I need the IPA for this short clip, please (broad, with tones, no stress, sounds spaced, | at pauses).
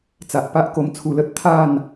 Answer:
t͡s a˨ ʔ p a˦ ʔ k o˧ m t͡sʰ u˧ l ə˦ t̚ t̪ʰ a˥˧ n